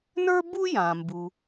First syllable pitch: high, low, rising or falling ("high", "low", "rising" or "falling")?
high